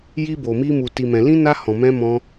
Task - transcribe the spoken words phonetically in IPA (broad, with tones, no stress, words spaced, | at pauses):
ji˦bo˧mi˦ mu˧ti˧mɛ̃˧ lĩ˦na˦hɔ̃˧ mɛ̃˦mɔ̃˦